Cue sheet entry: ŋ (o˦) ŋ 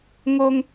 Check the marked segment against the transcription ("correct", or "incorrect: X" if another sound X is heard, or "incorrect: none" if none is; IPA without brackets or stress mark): correct